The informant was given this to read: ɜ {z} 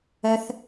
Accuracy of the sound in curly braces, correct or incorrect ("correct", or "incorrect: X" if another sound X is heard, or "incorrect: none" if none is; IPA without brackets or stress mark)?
incorrect: θ